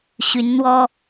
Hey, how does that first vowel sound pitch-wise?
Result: rising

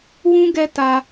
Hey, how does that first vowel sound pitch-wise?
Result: high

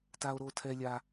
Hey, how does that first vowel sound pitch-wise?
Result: high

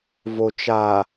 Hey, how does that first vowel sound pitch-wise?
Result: low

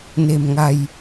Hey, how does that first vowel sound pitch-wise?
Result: low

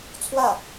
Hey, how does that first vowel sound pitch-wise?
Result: falling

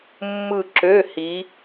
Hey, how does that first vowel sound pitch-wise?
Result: falling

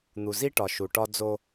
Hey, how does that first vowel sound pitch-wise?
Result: low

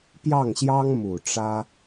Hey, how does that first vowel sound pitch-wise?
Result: falling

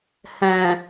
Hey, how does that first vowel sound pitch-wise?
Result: low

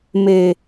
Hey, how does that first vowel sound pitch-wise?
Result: low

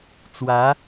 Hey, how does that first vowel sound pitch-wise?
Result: rising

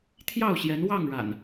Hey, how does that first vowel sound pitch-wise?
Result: falling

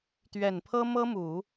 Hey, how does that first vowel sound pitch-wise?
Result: low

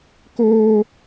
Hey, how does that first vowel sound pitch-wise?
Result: high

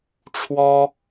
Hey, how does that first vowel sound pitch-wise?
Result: high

